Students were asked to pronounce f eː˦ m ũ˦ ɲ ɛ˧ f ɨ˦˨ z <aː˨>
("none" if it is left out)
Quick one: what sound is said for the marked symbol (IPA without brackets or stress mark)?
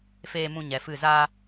aː˦